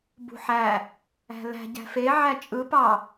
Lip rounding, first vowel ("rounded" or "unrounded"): rounded